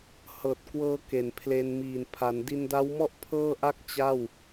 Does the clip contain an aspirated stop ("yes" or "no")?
yes